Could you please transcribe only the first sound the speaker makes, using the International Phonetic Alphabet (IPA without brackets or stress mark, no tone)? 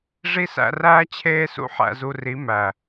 ʐ